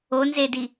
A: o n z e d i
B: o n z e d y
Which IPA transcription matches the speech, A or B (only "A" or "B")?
A